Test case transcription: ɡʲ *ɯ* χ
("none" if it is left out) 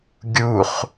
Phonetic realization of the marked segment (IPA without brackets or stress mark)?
u